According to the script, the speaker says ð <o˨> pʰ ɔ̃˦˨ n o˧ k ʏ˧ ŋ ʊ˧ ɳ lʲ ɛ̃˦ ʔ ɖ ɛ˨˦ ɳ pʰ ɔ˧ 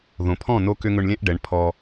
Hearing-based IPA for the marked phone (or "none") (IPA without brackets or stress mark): õ˨